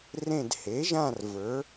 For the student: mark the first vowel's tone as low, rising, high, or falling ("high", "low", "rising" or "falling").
falling